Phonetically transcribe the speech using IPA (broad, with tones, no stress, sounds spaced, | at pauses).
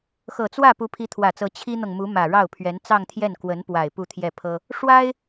x ɤ˨˩ t͡s w ä˥˩ p u˧˥ pʰ i˧˥ t̪ʰ w ä˨˩ t͡s ɤ˧˥ t͡ɕʰ i˥ n̪ ɤ˨ ŋ m u˧˥ m ä˨˩ ɻ ɑ˥˩ ʊ̯ pʰ ɥ ɛ˧˥ n t͡s ɑ˥˧ ŋ t̪ʰ j ɛ˥˩ n k w ə˧˥ n p w a˨˩ ɪ̯ p u˥˧ t̪ʰ j ɛ˥˩ pʰ ɤ˥ | ʂ w a˥ ɪ̯